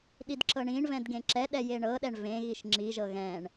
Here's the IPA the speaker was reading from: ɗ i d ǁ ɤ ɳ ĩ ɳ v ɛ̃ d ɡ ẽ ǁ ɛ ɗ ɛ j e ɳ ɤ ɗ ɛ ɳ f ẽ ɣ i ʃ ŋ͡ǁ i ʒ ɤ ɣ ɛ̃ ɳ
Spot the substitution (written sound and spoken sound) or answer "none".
f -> v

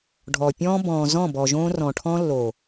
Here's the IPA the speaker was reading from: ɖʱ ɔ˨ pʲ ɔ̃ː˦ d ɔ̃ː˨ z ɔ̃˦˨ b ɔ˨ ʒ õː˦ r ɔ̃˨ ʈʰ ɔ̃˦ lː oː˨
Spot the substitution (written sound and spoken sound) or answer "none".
d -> b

